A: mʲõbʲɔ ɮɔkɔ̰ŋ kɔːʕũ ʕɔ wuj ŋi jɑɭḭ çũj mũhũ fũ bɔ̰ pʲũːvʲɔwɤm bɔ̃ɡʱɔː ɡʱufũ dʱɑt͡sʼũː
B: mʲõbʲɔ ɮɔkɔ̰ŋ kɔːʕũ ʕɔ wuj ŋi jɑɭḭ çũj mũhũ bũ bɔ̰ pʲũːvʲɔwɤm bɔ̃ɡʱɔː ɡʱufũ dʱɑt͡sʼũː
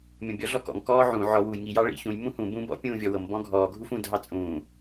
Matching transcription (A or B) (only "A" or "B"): B